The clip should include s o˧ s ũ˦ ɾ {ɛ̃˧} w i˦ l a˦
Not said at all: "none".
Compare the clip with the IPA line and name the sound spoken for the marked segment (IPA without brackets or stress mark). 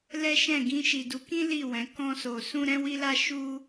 ɛ̃˦